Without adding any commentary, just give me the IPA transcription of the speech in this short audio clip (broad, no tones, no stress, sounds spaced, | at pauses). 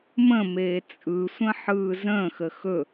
m ə̃ m eː t͡sʼ ɯ sʷ ə̃ ħ ɯː z ə̃ː x ə x ɵ